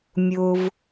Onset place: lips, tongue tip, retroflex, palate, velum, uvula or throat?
lips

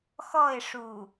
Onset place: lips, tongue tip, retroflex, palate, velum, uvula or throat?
velum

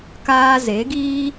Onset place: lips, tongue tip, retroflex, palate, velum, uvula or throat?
velum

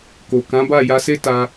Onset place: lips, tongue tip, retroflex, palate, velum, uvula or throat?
velum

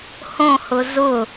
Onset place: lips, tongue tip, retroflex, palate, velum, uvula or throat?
throat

